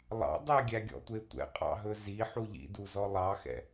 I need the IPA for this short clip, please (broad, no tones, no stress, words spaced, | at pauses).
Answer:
lˠɑ̰ dˤɛɡʲæɡʲɔ̰tʷe tʷɛ̰qʼɑ̰ɦɵ zi ħuʎḭduzɔ lˠɑxɛ̰